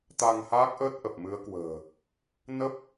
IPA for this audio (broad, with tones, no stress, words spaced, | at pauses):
t̪a˧ŋhaː˦˥k̚ʔəː˦˥t̚ ʔə˨˩p̚mɨ˨˦ə̯kwə̤ː˨˩ | nə˦˥p̚